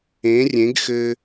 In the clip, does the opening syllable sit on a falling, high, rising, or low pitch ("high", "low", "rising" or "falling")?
rising